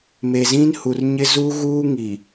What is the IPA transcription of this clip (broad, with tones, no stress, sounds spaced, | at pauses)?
m e˨ z ĩ˦ n h u˨ r ɲ ɪ˦ z u˦ ɣ uː˦ ŋ i˨